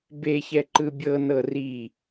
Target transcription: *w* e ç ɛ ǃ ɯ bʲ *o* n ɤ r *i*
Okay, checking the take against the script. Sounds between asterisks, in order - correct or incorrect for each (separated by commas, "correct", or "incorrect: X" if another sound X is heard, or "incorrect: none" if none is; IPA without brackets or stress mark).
incorrect: b, incorrect: ɤ, correct